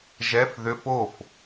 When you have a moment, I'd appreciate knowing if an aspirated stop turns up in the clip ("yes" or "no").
no